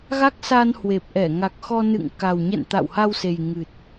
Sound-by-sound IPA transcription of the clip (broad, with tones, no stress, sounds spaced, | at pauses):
ɣ a˦˥ k̚ s a˧ n h w e˨˩ p̚ ʔ ɛ˧˩ ŋ a˨˩ k̚ x ɔ˧ n ɨ̰˧˨ ŋ k a˨˩ w ɲ ɛ̰˧˨ n t̪ a̰˧˨ w h a˧ w s e˨˩ j ŋ ɨ˨˩ t̚